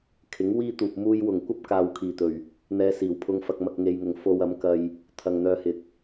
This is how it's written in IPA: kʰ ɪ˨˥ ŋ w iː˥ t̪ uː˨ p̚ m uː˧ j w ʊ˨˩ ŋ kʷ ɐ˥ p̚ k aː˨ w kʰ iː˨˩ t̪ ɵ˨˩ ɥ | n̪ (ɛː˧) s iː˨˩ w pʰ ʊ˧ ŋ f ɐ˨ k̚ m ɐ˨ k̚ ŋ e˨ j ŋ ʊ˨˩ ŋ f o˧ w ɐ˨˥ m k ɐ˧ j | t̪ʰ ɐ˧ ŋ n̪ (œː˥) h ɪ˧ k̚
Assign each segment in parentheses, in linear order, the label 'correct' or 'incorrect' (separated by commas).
correct, correct